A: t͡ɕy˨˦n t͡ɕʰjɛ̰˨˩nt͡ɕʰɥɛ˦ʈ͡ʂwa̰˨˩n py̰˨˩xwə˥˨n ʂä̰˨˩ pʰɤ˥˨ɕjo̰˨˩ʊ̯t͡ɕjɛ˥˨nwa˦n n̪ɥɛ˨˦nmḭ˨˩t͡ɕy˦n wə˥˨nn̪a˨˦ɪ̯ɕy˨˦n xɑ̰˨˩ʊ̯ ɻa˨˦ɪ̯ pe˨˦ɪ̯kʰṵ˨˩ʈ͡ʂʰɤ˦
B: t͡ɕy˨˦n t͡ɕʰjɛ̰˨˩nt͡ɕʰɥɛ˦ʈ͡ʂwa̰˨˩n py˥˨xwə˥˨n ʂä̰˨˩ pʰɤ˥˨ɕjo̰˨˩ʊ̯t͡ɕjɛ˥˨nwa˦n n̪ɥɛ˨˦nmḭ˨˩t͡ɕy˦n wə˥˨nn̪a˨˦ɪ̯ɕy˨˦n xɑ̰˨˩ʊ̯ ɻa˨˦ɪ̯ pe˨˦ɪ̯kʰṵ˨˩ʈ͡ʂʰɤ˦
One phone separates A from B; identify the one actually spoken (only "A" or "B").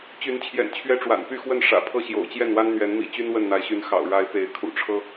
B